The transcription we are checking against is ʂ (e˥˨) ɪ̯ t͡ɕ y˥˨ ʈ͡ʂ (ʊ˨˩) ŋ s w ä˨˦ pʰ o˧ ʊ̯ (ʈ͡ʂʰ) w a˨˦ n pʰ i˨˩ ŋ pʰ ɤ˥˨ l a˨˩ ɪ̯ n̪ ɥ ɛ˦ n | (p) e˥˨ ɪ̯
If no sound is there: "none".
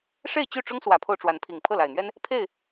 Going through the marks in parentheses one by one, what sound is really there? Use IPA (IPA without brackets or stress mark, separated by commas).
e˥˨, ʊ˦, ʈ͡ʂ, pʰ